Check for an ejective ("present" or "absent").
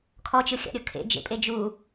present